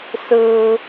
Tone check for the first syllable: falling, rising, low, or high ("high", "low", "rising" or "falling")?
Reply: high